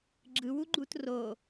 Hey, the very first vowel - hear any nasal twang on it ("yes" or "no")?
no